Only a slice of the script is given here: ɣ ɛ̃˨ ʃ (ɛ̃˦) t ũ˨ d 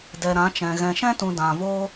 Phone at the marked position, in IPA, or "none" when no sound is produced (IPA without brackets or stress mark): ɛ̃˦